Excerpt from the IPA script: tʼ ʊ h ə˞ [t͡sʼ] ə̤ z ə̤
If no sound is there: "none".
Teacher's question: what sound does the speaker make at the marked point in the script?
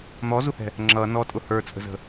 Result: t͡sʼ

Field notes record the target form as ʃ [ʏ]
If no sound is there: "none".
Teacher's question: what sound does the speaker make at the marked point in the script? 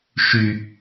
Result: y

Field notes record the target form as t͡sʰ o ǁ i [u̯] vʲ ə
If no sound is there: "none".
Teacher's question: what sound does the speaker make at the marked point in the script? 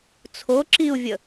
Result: u̯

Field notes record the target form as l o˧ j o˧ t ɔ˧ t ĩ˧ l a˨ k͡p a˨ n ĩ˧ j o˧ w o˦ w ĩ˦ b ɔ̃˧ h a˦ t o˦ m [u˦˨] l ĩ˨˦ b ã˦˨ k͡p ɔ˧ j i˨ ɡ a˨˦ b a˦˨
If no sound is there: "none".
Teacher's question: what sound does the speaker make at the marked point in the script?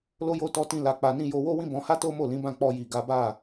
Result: o˦˨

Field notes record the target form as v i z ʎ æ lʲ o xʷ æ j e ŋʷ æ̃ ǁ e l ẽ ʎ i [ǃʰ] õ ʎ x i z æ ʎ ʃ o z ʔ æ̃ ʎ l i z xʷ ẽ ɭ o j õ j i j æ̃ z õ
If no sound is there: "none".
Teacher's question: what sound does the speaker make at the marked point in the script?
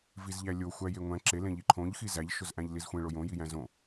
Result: ǃʰ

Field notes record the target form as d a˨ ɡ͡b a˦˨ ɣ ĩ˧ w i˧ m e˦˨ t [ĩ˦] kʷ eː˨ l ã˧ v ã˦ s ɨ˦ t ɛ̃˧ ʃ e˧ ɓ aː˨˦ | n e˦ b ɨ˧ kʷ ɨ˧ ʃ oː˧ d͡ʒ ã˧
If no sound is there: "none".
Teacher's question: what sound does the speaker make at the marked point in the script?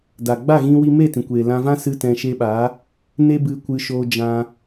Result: ĩ˨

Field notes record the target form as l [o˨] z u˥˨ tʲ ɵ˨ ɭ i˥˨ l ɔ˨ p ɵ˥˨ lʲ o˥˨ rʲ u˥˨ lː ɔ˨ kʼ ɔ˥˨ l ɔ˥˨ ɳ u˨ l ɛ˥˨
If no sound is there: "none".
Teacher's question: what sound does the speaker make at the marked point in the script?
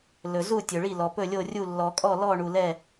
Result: ɵ˨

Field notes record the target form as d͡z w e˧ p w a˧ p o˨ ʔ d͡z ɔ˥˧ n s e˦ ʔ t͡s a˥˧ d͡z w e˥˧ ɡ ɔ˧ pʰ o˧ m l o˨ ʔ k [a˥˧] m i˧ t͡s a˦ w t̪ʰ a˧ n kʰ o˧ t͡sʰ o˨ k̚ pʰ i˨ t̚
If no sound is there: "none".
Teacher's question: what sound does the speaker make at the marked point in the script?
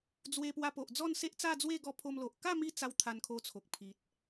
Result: a˥˧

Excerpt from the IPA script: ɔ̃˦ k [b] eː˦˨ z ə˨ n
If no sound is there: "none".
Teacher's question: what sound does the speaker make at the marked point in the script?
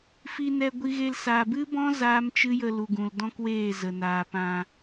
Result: w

